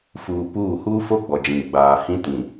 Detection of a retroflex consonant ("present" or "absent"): absent